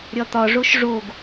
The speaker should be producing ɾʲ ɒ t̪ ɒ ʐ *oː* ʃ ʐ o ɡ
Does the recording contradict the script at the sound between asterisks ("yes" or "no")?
yes